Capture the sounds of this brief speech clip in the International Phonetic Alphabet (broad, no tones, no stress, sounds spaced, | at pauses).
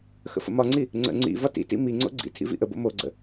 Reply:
x ə̰ f ə̰ m ɒ ŋ͡ǀ i | ŋ͡ǀ ə̰ ŋ͡ǀ ḭ v ɒ t ḭ t ḭ m i ŋ͡ǀ o̰ ɡ͡ǀ ḭ tʰ ḭ v ḭ ʔ ə b o̰ m o ɡ͡ǀ ə̰